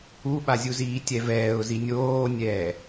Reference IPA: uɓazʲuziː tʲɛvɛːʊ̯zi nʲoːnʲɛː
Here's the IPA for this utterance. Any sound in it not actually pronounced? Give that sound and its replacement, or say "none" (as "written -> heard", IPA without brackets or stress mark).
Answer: none